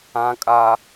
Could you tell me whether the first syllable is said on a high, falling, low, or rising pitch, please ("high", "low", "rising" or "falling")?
high